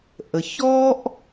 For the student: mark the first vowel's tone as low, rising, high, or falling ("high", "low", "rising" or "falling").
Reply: low